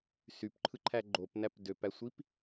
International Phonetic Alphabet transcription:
s y p ǃʰ ɯ ǃʰ æ ɡ͡ǃ o p n æ p d ø p æ sʷ i p

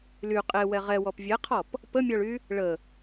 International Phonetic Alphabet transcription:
l y qʼ e w ɛ ʁ ɛ w ɔ p vʲ ɛ qʰ ɔ p | p ə mʲ ɔ ɭ y | ɭ ə

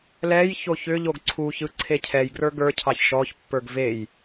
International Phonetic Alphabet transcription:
l ɛ j ç o ç ʏ ʎ o ɡ ǀʰ u ç ɯ ǀʰ e cʰ ɛ j ɡ r ə˞ ɡ ə˞ cʰ ɑ ç ʃ ɔ ç pː ə˞ ɡ v e j

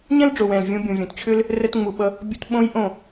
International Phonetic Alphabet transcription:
ɲ ɛ̃˦ l ɖ͡ʐ o˨ w ɛ̃˨ l vʲ ũ˧ bʲ ũ˨ vʲ õ˨ t t͡ɕʰ ʏ˦ l | r ɛ˧ t ŋ͡m u˨ ɓ ʌ˧ | bʲ u˧ t ɓ õ˦ j ʔ õ˦˨

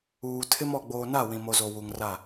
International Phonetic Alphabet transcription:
uː˨ tʰ ɪ˦ m ɔ˨ ɡ͡b oː˨ n a˦˨ w ĩ˨ m o˨ z o˨ w u˨ ŋ r a˦˨

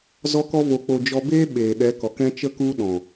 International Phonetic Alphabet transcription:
z ɔ˧ k ɔ˧ v o˨ k͡p o˨ d͡ʒ ɔ˧ b eː˦ ɓ eː˨ ɗ ɛ˨˦ k ɔ˨ k ɛ̃˦ t͡ʃ ə˦ k u˦ ɗ ɔ̃˨

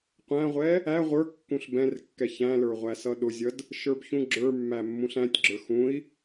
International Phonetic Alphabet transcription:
qʷ æ̃ ʁʷ ɛ | æ ʁʷ ə˞ kː ũ ɬ b ɛ̃ r kː ɛ ç æ̃ l ə˞ ʁʷ æ s ʌ ɗ ʊ zʲ ʌ d | ʃ ə˞ b ç ũ ɡ͡ǁ ə˞ mː æ mː ũ ɬ æ̃ tʲ ɡ͡ǁ ə˞ x ũ i̯

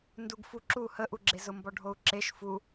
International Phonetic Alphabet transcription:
n d u ɡ f u ǁ u h ə ʔ u ɡ͡ǁ e z ʊ m b ɔ ɖʱ o u̯ ǁ e ʃ f u

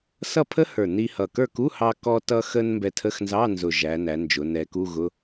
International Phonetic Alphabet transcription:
s ʌ˥˨ pʰ ə˥ h ə˞˨˩ n i˧ h ʌ˨˩ k ə˞˥˨ k u˧˥˧ h ɑ˧ k ɔ˧ t ʌ˧ x ə˧ n m b ɛ˧ tʰ ə˧˥˧ x n z ɑ˧˥˧ n z ʊ˨˩ ʒ æ˩˧ n æ˩˧ n d͡ʒ ʊ˩˧ n ɛ˩˧ k u˧˥˧ ɣ ʊ˧˥˧

